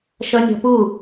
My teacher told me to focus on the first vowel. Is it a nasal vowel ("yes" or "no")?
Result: no